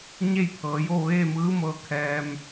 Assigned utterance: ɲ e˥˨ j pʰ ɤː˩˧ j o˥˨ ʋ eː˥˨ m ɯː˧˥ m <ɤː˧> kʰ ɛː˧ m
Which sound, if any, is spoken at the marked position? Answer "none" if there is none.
ɤː˧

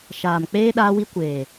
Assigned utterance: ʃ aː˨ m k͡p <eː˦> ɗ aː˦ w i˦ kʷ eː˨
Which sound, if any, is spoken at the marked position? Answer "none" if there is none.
eː˦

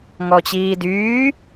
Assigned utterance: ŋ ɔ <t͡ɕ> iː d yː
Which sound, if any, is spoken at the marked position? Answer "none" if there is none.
t͡ɕ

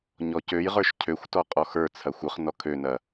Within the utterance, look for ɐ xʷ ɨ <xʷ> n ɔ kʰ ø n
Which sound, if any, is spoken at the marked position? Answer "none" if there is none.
χ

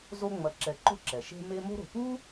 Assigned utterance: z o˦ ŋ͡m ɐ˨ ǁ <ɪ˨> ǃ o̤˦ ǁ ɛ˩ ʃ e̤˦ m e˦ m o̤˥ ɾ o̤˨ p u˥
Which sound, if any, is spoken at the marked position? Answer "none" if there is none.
ɛ˨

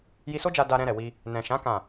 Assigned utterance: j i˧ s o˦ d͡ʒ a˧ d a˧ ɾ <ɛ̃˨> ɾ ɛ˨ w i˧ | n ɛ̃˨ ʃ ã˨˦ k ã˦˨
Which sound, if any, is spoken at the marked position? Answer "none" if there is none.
ɛ̃˧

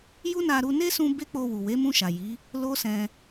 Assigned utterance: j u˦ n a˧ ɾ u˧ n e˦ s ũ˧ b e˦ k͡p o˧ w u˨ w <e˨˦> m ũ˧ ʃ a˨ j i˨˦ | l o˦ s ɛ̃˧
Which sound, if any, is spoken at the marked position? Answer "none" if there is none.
e˨˦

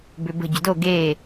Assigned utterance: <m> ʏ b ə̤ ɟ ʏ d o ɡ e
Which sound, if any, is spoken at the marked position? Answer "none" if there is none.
b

